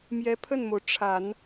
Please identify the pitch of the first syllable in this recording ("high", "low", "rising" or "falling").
rising